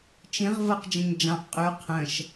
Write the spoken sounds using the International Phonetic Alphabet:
t͡ʃ ĩ ʁ v ɤ q d͡ʒ ə̃ ɲ d͡ʒ ɑ̃ ʔ qʼ ʉ qʰ ə̃ ʃ

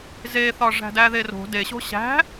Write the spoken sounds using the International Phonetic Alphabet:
z e θ ɒ ʐ æ̤ d æ ð e r o̤ d e ɕ o̤ ɕ æ̤

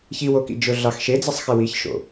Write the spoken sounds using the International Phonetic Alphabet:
ç i w o k ḭ d͡ʒ ɵ ɮ ɑ x ʃ e d͡z e sˤ x e w i ç ʃ o̰

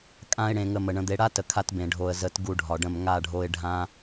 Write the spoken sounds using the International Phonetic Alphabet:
kʼ ã˦ ɪ̯ ɽ ẽ˧ ŋ ə˧ m ə˨ ɳ ə̃˧ d̪ e˧ ɽ a˦ t ə˨ kʰ a˧ t b ẽ˨ ɖʱ o˨ ə̯ z ə˨˦ t ɡ u˧ ɖʱ ɒ˨ ɖ ə̃˦˨ m ŋ a˦˨ ɖʱ o˧ ɪ̯ ɖʱ ã˧

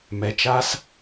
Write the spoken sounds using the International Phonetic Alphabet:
m ɛ˩ t͡ʃ a˦ s

